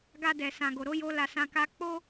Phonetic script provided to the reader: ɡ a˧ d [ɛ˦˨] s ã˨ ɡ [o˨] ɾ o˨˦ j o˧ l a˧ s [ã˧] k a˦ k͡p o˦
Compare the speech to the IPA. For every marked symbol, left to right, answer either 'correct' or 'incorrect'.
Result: incorrect: ɛ˨, correct, correct

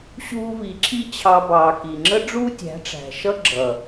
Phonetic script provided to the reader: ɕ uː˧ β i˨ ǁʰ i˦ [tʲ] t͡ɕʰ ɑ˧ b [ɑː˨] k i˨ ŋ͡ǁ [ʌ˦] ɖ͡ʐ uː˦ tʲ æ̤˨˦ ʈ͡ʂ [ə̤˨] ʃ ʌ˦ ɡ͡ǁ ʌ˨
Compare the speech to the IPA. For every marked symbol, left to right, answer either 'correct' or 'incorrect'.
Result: incorrect: none, correct, incorrect: ə˦, incorrect: æ̤˨

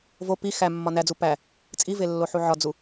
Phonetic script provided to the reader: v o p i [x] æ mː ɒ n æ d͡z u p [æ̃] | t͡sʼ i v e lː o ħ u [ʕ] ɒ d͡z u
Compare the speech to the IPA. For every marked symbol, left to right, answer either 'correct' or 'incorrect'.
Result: correct, incorrect: æ, correct

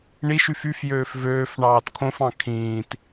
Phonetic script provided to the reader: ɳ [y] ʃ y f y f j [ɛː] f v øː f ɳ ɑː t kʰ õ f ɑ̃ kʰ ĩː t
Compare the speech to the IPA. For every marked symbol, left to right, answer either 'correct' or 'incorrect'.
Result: incorrect: i, incorrect: øː

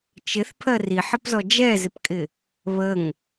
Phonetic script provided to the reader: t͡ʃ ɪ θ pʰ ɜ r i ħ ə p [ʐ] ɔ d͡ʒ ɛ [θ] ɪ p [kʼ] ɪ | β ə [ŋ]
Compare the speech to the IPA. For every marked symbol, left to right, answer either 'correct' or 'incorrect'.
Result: incorrect: z, incorrect: z, correct, correct

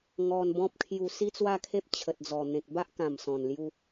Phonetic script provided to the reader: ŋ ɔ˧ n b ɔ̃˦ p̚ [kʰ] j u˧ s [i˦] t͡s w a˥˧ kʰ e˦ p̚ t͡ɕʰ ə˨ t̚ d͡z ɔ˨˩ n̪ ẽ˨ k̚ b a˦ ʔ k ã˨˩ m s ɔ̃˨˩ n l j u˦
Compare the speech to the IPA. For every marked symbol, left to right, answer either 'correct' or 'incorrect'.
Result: correct, correct

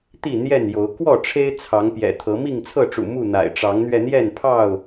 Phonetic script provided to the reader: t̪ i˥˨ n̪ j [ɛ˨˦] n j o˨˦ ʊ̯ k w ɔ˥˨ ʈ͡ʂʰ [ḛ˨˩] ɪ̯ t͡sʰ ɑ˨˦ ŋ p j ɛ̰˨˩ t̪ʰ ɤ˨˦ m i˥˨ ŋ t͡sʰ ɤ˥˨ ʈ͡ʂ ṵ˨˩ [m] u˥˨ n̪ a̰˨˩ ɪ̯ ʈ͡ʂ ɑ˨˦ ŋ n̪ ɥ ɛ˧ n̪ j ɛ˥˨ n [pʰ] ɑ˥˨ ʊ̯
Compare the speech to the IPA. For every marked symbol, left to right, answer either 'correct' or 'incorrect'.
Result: incorrect: ɛ˥˨, incorrect: e˦, correct, correct

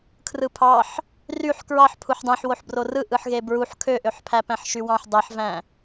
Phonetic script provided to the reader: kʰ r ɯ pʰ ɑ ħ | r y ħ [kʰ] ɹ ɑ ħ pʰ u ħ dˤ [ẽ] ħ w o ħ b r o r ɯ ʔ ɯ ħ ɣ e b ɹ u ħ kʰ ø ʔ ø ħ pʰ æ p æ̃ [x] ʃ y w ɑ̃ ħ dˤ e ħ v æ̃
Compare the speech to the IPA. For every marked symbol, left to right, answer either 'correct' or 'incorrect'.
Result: incorrect: k, correct, incorrect: ħ

